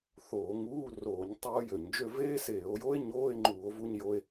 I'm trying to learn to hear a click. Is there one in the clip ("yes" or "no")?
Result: yes